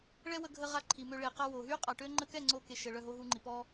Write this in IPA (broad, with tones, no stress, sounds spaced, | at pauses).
ɭ ɛ˦ w ə˧ ɡʱ ə˧ ʁ a˦ ǃʰ i˨ m ø˧ ɭ e˨ q a˧ w o˨ ɦ y˦ qʼ a˨ ʈ ø˦ ŋ͡ǃ ə˧ k ɛ˦˨ ŋ͡ǀ o˧ k e˨ ʃ ə˨ ɭ œ˦˨ ɦ o˦ ɦ u˧ ŋ͡ǃ i˨ p ɔ˦